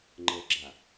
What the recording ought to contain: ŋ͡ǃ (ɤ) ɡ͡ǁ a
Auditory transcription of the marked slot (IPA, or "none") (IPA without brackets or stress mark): ɤ